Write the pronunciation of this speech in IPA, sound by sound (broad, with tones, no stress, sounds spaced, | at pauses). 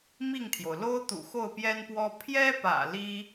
m i˥˩ ŋ t̪ʰ j o˩ ʊ̯ l o˥ ʊ̯ t̪ ṵ˨˩ x o˥˩ ʊ̯ p j ɛ˥ n p w ɔ˥ pʰ j ɛ˥ p ä̰˨˩ l i˥